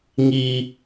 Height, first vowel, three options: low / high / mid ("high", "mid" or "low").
high